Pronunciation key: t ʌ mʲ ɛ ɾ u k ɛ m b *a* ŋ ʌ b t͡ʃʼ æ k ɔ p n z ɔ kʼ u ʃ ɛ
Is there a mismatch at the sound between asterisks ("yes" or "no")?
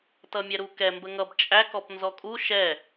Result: yes